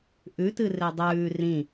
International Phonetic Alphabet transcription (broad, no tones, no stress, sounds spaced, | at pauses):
ʔ ʉ t ɨ r e dˤ ʉː r ĩ